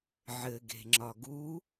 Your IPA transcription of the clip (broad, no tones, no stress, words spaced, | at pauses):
ʕɘɡe̤ŋ͡ǁɒ ɡu